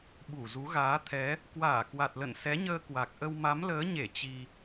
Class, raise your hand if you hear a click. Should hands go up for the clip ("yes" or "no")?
no